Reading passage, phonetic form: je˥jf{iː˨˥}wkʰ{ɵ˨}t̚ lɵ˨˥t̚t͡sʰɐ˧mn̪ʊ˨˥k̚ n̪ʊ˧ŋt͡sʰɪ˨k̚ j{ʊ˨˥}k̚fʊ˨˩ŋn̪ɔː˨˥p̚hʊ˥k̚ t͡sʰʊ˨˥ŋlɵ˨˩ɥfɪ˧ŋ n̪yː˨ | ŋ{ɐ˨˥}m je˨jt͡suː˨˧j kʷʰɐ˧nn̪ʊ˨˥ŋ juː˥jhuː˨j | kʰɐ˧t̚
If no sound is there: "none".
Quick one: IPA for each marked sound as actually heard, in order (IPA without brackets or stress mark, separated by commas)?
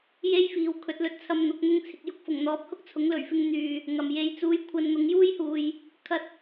iː˨˥, ɵ˨˥, ʊ˨˥, ɐ˨